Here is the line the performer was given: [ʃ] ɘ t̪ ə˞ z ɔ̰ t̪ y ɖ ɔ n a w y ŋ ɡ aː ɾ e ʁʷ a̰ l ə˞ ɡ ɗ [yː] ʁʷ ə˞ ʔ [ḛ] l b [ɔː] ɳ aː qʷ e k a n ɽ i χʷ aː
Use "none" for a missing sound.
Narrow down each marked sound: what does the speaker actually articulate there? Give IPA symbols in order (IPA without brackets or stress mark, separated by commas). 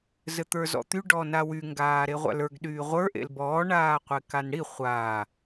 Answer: z, yː, ḛ, ɔː